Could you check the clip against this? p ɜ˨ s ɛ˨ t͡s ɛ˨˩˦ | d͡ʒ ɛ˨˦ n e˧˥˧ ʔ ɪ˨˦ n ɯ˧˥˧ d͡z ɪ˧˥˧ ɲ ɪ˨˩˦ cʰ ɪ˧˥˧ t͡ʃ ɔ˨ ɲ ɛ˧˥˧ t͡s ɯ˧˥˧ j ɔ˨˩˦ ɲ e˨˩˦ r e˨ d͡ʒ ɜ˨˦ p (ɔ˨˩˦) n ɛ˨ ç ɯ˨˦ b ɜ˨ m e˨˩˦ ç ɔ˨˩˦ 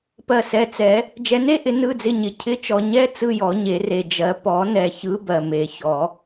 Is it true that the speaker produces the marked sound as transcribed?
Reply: yes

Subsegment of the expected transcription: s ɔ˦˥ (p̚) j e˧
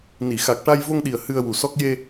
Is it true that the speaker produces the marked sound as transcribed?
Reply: no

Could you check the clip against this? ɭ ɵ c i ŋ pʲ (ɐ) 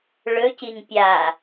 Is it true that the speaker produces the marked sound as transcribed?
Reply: no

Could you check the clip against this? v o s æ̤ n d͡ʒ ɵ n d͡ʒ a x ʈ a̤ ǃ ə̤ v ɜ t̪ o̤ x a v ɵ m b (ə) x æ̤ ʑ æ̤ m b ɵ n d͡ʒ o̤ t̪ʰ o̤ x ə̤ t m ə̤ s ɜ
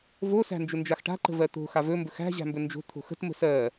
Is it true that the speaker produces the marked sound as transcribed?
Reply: no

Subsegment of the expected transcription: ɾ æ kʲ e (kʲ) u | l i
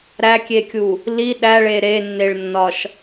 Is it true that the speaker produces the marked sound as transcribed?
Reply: yes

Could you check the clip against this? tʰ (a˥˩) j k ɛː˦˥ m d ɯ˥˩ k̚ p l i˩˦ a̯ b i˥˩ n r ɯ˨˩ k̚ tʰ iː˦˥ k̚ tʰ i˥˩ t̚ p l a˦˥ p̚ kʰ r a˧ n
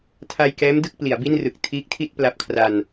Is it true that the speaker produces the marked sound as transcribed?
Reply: no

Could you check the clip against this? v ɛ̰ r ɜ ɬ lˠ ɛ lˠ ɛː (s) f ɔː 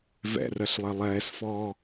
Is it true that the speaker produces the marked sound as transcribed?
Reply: yes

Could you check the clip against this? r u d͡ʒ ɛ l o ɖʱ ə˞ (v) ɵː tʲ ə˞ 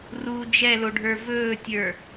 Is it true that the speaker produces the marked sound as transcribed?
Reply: yes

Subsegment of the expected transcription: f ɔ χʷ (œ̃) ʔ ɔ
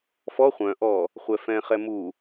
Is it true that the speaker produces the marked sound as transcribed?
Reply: yes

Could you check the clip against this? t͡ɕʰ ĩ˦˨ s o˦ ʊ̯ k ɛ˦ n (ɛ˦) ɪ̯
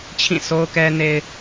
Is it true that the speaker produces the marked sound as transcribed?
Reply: no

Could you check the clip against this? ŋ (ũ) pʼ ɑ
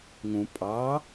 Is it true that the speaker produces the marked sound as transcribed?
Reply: yes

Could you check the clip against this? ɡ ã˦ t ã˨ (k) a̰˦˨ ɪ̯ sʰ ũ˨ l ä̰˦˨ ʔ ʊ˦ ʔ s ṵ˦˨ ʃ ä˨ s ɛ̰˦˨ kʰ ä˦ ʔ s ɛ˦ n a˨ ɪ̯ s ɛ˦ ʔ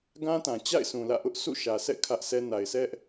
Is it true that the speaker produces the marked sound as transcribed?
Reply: no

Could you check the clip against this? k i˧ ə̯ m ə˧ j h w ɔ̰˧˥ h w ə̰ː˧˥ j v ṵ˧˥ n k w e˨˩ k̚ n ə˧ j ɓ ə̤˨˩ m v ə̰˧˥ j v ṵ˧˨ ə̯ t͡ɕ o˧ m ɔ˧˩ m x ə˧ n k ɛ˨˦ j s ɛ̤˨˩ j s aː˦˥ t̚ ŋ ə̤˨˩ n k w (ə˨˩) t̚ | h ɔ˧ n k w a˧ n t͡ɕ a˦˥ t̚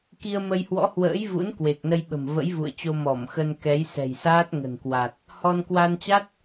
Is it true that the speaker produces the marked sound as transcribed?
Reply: no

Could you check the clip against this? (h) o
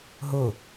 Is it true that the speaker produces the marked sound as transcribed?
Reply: no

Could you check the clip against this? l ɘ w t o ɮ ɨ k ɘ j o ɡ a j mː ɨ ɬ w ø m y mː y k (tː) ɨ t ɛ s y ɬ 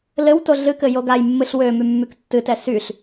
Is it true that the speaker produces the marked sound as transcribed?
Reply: yes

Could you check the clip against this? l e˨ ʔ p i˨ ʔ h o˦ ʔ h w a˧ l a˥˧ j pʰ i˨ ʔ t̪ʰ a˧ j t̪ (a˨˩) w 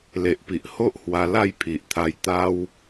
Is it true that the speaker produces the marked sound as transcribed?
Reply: no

